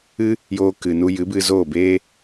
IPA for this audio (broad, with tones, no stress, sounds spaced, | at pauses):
ɨ˧ | j oː˧ k ɨ˨ n u˧ j ɨ˨˦ b ɨ˧ z oː˦˨ b eː˦